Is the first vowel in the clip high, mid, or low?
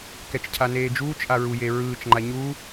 mid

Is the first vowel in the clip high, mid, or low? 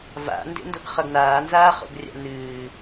low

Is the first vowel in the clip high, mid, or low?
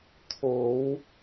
mid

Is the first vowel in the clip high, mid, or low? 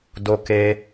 mid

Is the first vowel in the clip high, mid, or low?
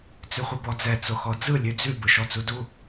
high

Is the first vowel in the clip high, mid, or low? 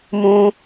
high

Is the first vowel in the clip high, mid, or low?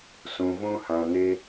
high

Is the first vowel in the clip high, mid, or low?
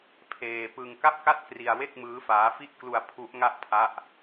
mid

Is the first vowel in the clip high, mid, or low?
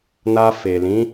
low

